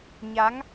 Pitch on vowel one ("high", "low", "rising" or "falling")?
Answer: rising